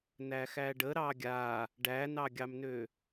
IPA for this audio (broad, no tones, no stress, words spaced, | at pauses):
næxæɖə ɾɑɡʲa | ɖænɑɡʲɑmnø